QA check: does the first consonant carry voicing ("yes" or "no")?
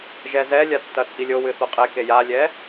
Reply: yes